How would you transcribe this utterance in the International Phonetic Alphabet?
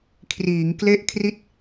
kʰ r iː˩˦ ŋ k l e˥˩ ʔ kʰ r i˥˩ t̚

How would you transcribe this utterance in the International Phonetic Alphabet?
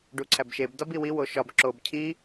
ɖ u ǀʰ æ b ʃ e b d ɒ b i w i w o ʃ ɒ b ǁ o b cʰ i

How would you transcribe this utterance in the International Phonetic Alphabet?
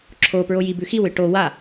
ǁʰ o p ɹ o j i b ʉ x i w ɨ ʈ o w a

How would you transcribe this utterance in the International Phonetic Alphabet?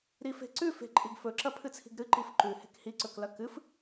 ɾ i f e̤ ǀ ʉ f e̤ ǃʼ i ɡ f ɵ ǁ ɐ pʰ ɨ t͡sʰ i̤ ɡ ɾ ɨ ǃ i f ǃ ʉ h e̤ k h i ǀ ɵ k l ɐ k ɨ f

